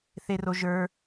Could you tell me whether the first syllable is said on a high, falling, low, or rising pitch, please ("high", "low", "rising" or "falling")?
high